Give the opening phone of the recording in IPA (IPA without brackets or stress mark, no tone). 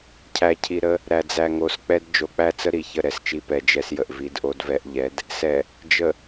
cʰ